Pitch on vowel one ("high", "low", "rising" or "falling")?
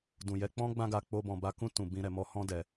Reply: low